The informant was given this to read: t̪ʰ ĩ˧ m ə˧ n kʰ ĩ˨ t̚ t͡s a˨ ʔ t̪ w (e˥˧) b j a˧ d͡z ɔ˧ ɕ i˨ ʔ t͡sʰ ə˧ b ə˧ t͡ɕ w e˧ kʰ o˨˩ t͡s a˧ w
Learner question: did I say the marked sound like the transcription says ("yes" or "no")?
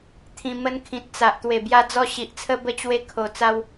no